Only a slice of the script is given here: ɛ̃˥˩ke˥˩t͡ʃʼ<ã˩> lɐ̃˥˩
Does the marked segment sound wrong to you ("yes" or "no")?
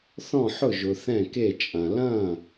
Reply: yes